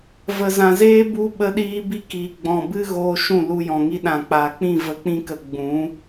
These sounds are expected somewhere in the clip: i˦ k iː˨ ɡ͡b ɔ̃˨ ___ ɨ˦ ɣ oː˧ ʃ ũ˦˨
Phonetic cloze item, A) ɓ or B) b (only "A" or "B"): B